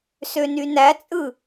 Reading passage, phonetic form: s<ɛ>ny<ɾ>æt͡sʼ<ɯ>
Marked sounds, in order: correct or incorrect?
incorrect: ø, incorrect: n, correct

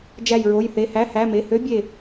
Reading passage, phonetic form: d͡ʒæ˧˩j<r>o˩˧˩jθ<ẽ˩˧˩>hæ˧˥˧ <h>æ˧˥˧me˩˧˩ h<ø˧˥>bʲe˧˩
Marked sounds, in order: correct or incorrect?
incorrect: ɹ, incorrect: e˩˧˩, correct, correct

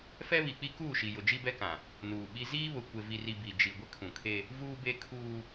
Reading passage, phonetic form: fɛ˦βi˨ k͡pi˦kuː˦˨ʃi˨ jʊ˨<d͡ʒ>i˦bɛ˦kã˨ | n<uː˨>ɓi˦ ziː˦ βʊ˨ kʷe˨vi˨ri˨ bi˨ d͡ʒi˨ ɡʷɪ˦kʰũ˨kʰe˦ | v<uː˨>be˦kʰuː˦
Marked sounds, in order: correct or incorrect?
correct, correct, incorrect: uː˦

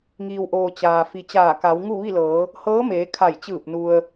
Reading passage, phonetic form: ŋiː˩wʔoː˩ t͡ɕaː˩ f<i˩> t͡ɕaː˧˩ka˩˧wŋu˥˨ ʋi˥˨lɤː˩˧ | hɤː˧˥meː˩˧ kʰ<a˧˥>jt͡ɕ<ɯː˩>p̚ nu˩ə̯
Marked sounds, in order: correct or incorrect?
correct, incorrect: a˧˩, incorrect: ɯː˧˩

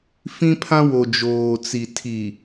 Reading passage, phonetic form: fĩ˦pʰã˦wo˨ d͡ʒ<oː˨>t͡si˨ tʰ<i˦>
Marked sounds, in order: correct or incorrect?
correct, incorrect: i˨

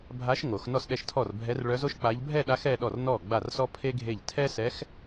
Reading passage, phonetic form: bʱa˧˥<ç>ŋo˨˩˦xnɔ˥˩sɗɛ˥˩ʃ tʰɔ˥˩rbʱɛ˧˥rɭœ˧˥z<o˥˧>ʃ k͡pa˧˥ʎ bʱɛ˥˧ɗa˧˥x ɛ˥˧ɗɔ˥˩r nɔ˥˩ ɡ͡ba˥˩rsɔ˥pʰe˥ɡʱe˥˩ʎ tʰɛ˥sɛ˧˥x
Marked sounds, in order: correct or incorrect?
incorrect: ʃ, incorrect: o˥

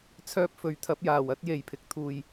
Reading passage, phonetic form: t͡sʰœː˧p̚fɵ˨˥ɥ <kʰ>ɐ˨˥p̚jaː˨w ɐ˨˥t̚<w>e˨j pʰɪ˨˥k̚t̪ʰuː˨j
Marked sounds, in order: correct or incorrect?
incorrect: t̪ʰ, incorrect: j

